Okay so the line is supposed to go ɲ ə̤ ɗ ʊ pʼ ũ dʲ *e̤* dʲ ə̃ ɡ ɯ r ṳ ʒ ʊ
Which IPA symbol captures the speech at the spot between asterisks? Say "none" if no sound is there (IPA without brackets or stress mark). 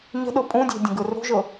e̤